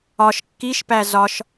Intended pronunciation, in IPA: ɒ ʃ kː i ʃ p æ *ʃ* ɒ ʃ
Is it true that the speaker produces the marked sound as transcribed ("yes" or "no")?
no